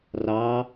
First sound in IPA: r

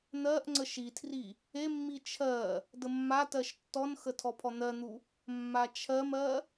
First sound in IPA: n̪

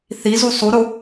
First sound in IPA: θ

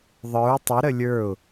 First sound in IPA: ðˤ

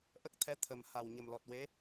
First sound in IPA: ʔ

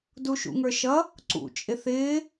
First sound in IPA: d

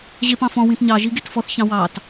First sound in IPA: ʑ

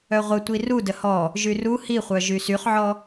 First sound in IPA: œ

